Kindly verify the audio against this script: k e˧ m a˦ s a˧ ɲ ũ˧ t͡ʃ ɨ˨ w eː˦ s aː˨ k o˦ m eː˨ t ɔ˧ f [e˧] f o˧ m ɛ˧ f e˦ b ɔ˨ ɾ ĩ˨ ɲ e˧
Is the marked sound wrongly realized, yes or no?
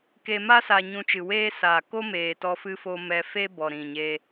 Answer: yes